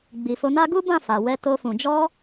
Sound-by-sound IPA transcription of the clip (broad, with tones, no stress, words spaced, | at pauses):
ɡ͡bi˨fo˨˦na˦ ɡu˦bã˦˨fa˨ wɛ˧to˧fũ˨ d͡ʒɔ˧